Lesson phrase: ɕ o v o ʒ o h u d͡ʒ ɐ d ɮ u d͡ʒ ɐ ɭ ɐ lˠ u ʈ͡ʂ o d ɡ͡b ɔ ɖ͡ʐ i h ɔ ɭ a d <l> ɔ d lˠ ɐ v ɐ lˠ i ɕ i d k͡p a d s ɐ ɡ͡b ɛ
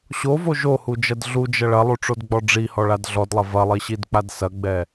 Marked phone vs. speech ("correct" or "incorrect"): incorrect